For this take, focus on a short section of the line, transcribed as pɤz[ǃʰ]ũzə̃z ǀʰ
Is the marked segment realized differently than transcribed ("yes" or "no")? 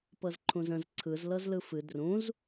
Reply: no